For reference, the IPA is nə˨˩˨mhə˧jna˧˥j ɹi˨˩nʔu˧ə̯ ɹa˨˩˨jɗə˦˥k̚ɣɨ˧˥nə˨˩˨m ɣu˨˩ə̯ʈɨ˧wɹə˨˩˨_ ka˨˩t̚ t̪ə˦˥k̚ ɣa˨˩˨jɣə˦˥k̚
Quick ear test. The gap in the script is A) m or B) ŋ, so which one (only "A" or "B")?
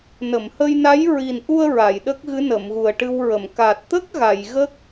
A